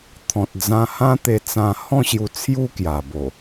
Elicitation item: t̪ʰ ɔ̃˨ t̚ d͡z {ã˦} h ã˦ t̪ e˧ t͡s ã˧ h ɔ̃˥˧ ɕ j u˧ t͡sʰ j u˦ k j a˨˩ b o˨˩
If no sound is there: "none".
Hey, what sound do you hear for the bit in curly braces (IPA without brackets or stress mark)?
ã˧